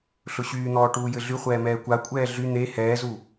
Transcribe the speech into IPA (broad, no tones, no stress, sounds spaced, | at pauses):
ɬ ʊ ɕ yː n̪ ɔː ʈ uː j ɘ ɮ y χʷ ɛː m ɛː kʷ a kʷʼ ɛː ɮ y n̪ e h ɛː z u